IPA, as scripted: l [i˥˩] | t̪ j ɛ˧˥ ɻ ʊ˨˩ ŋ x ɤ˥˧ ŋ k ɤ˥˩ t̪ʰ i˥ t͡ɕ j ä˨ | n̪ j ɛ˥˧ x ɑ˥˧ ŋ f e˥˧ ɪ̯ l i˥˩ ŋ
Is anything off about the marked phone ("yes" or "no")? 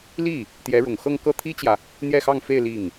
no